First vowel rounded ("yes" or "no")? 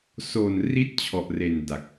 yes